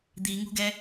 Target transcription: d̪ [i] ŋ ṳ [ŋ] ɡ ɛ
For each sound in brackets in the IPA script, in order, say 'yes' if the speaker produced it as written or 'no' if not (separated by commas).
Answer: yes, no